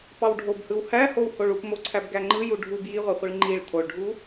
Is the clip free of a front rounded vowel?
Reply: yes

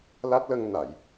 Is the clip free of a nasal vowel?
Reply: yes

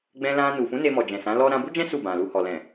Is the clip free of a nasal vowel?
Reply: no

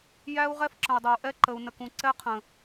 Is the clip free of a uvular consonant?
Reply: no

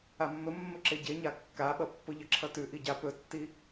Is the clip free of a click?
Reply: no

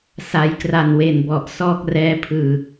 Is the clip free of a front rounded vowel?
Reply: yes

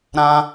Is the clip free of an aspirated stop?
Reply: yes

